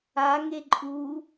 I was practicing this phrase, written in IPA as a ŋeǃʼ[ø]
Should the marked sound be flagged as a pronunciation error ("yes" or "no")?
yes